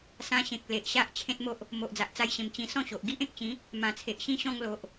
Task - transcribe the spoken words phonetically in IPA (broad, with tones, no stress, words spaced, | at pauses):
sã˧ɕẽ˨k̚ le˨ʔɕa˦ʔ t͡ɕʰẽ˦t̚mo˦ʔ | mo˨ʔd͡za˨ʔt͡sa˧jɕẽ˨˩m t͡ɕĩ˧ sɔ̃˥˧ɕo˨ʔ ɡi˦ʔẽ˨k̚t͡ɕĩ˨˦ | mã˨˩t͡sʰe˨ʔɕĩ˦ɕɔ̃˥˧ŋ lo˨ʔ